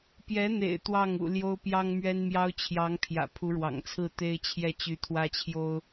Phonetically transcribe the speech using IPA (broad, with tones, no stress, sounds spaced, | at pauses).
p j ɛ˧˥ n̪ ḛ˨˩ ɪ̯ t̪ w ɑ˥˩ ŋ ṵ˨˩ l j o˥ ʊ̯ p j ɑ˥ ŋ m ɥ ɛ˥ n m j ɑ˥ ʊ̯ t͡ɕʰ j ɑ˧˥ ŋ pʰ j ä̰˨˩ pʰ u˧˥ ɻ w ɑ̰˨˩ ŋ t͡sʰ ɹ̩˥˩ t̪ e˥ ɪ̯ t͡ɕʰ j ɛ˥˩ t͡ɕ y˧˥ t̪ʰ w ä˥ t͡ɕʰ j o˥ ʊ̯